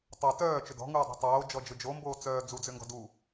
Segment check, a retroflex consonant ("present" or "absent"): absent